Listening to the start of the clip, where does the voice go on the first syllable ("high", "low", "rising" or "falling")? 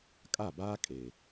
falling